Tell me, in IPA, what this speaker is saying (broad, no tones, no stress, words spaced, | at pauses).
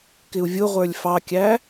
kɪu̯vʲʊʁʷə˞lʲ fɑkʲæ